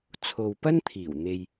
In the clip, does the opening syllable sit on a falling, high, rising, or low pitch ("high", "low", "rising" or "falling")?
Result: low